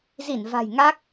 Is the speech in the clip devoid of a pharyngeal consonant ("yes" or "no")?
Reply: yes